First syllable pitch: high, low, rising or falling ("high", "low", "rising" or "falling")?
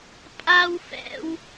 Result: high